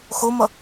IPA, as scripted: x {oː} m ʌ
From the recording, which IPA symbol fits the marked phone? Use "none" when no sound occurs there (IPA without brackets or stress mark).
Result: o